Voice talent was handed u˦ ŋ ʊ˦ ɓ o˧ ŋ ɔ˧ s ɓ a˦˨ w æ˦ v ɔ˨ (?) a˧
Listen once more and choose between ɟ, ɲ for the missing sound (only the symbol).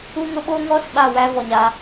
ɲ